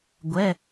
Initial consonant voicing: voiced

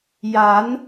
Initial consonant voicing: voiced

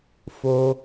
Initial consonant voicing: voiceless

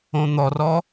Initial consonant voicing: voiced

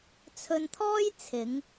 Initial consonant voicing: voiceless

